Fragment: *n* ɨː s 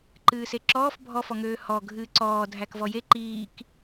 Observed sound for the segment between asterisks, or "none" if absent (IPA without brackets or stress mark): ǃ